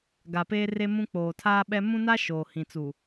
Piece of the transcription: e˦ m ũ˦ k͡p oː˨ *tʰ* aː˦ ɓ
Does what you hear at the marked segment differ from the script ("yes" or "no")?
no